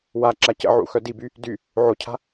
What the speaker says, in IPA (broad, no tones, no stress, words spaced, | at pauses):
waǁa cə̰ʕṵ xœdiby | dy | ʕocʰa̤